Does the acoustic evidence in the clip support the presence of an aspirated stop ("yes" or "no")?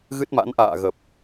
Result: no